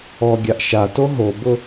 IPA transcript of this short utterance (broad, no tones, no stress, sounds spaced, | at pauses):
ɔ ɡʲ a ʔ ʃ a t o ɦ o b ʊ